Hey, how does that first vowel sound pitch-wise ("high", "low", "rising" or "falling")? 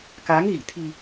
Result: rising